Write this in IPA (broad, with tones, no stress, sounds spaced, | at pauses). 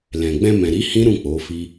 l ɛ̃˨ ɡ͡b ɛ̃˧ m ɛ̃˨ ɾ i˨˦ h ĩ˦ ɾ ũ˦˨ k͡p o˨˦ f i˦